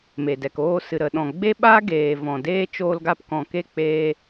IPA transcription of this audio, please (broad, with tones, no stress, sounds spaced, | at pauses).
m e˨ d ɛ˨ k oː˦˨ s ɨ˨ ɾ ə˨ ɗ ɔ̃˨ ɡ͡b e˦ ɓ aː˦ ɡ eː˨ v ɔ̃˨ d eː˦ t͡ʃ oː˧ l ɡ a˧ p k ɔ̃˨ k e˦˨ k͡p eː˧